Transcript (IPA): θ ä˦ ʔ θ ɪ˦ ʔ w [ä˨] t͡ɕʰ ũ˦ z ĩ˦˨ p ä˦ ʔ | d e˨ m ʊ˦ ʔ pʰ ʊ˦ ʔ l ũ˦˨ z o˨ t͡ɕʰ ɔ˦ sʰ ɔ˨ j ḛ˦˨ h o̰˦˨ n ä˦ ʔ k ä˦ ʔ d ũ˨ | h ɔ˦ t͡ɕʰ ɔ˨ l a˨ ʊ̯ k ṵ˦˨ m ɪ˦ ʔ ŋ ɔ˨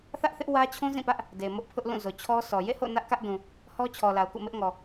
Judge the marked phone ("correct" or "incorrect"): incorrect